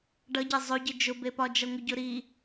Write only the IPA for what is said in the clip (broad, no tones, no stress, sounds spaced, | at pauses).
ɖ ʌ ɟ e zˤ ʊ ɟ ɨ d͡ʒ ʊ b e p ɒ d͡ʒ ʌ ŋʷ ɨ ɟ ʊ ɾ i